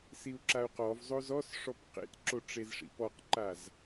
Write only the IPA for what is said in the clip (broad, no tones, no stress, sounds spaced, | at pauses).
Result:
s i u̯ ǁ a u̯ q ɔ v zˤ o z ɔ s ʂ ɔ p q ḛ t ǁ o ʈ͡ʂ e z ʂ ḭ p ɔ q ǃ a z